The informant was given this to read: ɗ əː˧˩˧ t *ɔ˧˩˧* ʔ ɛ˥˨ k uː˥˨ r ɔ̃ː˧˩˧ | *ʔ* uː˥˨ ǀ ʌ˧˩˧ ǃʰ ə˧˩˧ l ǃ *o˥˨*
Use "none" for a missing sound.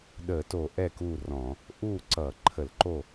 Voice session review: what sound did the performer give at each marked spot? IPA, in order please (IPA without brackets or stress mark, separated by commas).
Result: o˧˩˧, ʔ, o˥˨